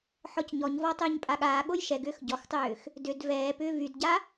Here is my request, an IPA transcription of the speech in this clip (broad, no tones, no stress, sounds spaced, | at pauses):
ħ ɔ c ɲ ɔ ɲ v ɔ tˤ ʏː ɲ pʼ a ɠ aː ɠ o j ʃ ɛ ɡ ʏː x ɟ ɔ x tˤ ʏː x | d ʏ d v ɛː p ʏː v y d ɟ a